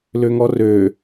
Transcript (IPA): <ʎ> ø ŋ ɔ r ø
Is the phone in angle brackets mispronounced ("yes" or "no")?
yes